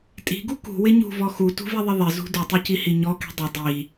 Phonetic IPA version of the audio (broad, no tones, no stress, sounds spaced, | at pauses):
tʼ i̤ ɡ u k ṳ w ɪ ɲ ṳ v ɔ x u t ṳ v i ðˤ ɪ ðˤ ɪ z ṳ d u tˤ i c i h i ɲ ɔ k i̤ dˤ ɪ dˤ i